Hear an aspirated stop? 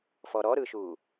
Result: no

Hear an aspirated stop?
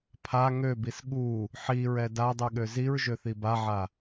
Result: yes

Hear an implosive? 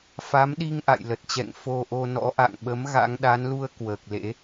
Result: yes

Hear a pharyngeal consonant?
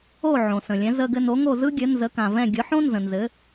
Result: yes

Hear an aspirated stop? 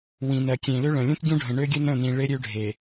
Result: no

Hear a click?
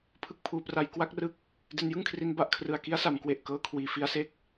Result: no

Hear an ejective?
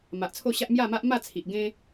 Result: no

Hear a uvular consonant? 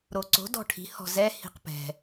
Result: yes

